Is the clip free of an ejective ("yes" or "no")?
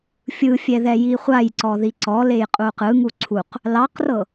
no